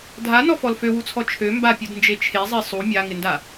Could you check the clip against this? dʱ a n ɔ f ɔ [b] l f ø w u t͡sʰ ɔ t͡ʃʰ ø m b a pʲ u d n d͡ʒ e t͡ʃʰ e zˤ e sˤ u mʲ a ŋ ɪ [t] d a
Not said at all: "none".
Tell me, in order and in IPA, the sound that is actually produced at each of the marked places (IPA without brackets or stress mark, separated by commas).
none, n